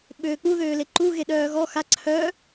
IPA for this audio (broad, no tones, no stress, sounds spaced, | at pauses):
ɓ øː k͡p u ð øː l e ǃ u ɣ e ɗ œː ɣ ɔ x a ǀʰ œ